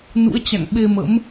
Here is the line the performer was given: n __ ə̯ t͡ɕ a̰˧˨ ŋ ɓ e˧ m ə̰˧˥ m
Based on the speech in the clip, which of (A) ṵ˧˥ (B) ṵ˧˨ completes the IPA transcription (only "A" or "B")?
A